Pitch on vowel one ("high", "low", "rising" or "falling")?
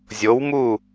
rising